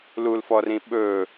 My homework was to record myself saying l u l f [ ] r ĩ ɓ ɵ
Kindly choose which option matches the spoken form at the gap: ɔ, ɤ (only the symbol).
ɔ